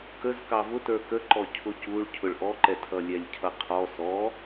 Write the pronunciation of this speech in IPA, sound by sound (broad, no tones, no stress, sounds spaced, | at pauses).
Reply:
k ə z k ɑ v ʊ t ə˞ k ə ǃ ɔ cʰ ʊ c u ɭ cʰ ʊ ɭ ʔ ɔ ǃ ɛ tʰ ʌ lʲ ɛ lʲ cʰ ʌ qʰ ɔ s ɔ